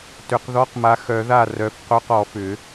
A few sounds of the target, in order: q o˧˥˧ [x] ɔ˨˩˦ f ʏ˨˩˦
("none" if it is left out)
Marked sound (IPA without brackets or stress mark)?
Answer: q